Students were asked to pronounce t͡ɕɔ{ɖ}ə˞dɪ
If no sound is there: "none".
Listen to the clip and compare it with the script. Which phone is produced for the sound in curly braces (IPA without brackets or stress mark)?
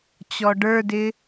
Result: ɖ